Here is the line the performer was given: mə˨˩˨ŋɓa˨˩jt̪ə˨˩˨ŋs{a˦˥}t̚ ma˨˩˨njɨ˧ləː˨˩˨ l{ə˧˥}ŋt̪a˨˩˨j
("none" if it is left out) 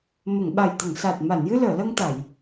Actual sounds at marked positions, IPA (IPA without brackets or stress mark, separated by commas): a˨˩, ə˧